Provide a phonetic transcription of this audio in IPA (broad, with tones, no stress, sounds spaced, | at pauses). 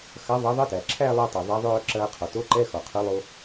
x ɐ˨˥ ðˤ ɐ˨˥ ðˤ ə˧˥˧ t æ˩ ǁʰ æ˥˧ lˠ əː˧ tˤ ɛ˩ ðˤ ɛ˨˥ ðˤ œː˥˧ ǁ ɐː˧ qʰ ɔ˩ t o˧˥˧ ǃ ɛ˧˥˧ x ɔ˩ qʰ ɵ˨˥ lˠ o˧